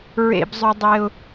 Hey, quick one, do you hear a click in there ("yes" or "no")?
no